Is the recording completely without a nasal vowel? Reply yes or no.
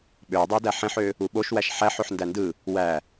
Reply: no